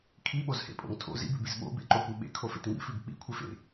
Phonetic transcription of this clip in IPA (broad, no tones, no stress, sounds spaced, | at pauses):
kʰ i ɓ o z h ḛ pʼ o̰ ŋ tʰ o̰ z ḭ b ʉ b i z ɓ o̰ b ḛ ǃ o kʷ i ɓ ḛ kʰ o f ḛ t ŋ ḭ f ʉ b k͡p ḭ kʷʰ e f ḛ